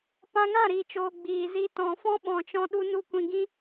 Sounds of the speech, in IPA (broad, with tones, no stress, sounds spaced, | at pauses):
p ã˧ ŋ ã˦˨ ɾ iː˨ t͡ʃ oː˨ ɡ͡b iː˨ z i˧ t ɔ̃˨ f ɔ̃˦ ɓ ɔ̃˨ t͡ʃ ɔ̃˧ ɗ u˧ n u˧ kʷ ĩ˨ ɡ ĩ˦